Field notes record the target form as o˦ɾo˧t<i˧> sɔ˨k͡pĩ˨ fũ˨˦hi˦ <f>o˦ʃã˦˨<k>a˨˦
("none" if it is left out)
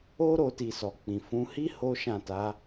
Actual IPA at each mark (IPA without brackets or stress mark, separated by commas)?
i˨, h, t